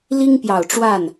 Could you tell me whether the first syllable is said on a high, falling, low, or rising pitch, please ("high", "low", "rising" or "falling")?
high